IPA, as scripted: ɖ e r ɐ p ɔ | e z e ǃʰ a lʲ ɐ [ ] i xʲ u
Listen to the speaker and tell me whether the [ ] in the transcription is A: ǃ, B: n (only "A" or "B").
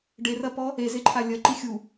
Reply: A